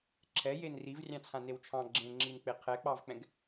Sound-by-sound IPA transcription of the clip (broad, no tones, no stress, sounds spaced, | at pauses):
ǁʰ ɛ j e n r i v rʲ ɑ̃ t͡sʰ ã n e w t͡ʃʰ ɑ̃ ɡ͡ǁ ẽ ŋ͡ǁ i n k͡p e qʰ ɛ k͡p ɑ v k͡p ɛ̃ ɡ